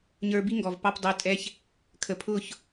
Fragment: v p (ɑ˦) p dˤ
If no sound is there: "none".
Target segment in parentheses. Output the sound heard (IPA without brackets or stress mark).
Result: ɑ˦